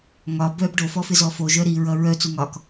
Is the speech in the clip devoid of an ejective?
yes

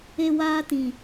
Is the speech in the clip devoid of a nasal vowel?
no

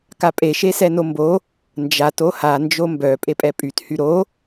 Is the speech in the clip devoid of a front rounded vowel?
no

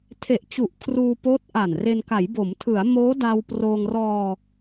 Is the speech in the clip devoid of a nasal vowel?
yes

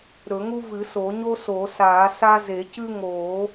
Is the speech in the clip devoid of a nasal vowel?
yes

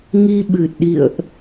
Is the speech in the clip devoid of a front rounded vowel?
yes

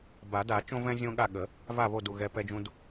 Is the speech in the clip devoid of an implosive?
no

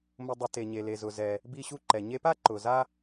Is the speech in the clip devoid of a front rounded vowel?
yes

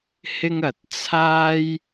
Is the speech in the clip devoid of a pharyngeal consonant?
yes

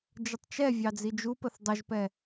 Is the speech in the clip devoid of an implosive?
yes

